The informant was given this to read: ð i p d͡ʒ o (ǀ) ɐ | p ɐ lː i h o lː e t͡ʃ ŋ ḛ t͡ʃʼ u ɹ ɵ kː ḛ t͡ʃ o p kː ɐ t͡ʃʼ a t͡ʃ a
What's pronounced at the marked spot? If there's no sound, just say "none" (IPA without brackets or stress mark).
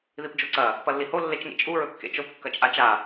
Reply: ǀ